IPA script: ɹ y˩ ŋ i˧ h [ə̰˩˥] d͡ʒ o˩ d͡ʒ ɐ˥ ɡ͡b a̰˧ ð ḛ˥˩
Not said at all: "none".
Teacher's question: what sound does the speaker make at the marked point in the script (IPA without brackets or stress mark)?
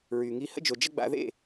ə̰˥